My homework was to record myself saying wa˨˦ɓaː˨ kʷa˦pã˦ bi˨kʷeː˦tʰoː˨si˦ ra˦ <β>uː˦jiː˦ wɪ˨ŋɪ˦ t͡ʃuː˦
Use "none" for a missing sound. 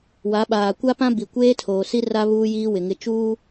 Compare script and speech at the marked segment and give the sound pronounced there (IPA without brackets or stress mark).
β